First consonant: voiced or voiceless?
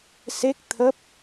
voiceless